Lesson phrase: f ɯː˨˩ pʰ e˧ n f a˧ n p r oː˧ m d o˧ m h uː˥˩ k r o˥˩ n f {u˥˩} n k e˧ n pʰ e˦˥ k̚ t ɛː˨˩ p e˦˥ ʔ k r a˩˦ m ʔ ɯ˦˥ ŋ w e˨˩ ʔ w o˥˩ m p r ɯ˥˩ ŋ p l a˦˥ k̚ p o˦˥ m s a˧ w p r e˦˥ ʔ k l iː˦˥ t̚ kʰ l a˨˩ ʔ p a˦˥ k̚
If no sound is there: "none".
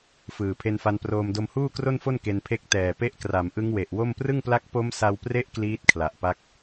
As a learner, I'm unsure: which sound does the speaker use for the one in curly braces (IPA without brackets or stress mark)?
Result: o˥˩